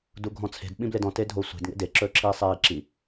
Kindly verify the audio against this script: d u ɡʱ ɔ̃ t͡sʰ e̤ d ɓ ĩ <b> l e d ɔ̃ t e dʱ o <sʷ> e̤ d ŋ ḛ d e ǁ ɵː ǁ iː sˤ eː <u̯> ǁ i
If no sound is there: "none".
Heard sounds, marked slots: b, sʷ, i̯

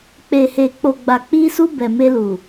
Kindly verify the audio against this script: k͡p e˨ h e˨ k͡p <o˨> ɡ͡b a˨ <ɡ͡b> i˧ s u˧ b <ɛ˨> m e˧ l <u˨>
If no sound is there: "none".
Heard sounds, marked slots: o˨, k͡p, ɛ˨, u˨

